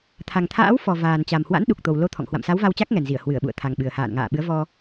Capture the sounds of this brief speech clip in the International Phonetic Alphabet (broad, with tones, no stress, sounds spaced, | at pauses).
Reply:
t̪ʰ a˨˩ ŋ t̪ʰ a̰ː˧˥ w f ɔ˨˩ v aː˨˩ n t͡ɕ a˨˩ m h w a̰˧˥ n ɗ u˨˩ k̚ t̪ o˨˩ w l o˧ t̪ʰ ɔ̰˧˨ ŋ h w a̰˧˨ m s a˨˦ w v a˧ w t͡ɕ a˦˥ k̚ ŋ ɛ˨˩ n z i˧˩ ə̯ h w ɨ˧˩ ə̯ ɓ ṵ˧˨ ə̯ t̪ʰ a˨˩ ŋ ɓ ɨ˨˩ ə̯ h a̰ː˧˨ n ŋ a̰ː˧˨ ɓ ɨ˨˦ ə̯ v ɔ˧